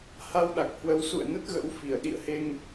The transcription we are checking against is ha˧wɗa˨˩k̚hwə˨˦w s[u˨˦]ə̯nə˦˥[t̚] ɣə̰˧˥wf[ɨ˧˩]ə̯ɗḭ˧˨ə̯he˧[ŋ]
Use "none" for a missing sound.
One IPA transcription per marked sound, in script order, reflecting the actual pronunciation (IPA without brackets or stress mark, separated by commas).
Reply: ṵ˧˨, t̚, i˧˩, ŋ